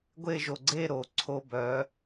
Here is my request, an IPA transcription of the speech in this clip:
ɡʷ e˥˧ ʒ o˧˩ ɡ͡ǀ e˥˧ ɾ o˩˧ ǀʰ o˧ b œ˩˧

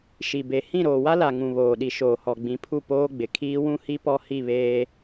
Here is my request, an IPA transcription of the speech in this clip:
ʃ i˨ b e˨ h ĩ˦˨ ɾ oː˨ w a˦ l a˨ ŋ ũ˨ β oː˨ ɗ i˨ ʃ oː˨ h ɔ˨ ɡ͡b ĩ˨˦ pʰ u˦˨ p oː˦ ɡ͡b ɪ˨ kʰ iː˦ w ũ˦ h i˦ p ɔ˦ h i˦˨ β eː˦

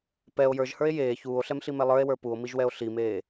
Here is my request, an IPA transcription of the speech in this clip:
p ɛ o̯ j ə˞ ʒ h ə˞ e̯ j eː ç uː o̯ ɬ ɛ m ɬ i m ɛ lˠ ə˞ e̯ w ə˞ p u o̯ m i ʒ w ɛ o̯ ɬ i m eː

